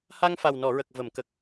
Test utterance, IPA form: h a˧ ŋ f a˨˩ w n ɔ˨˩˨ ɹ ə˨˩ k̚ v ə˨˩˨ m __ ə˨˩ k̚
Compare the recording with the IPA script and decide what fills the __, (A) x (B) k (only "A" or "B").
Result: B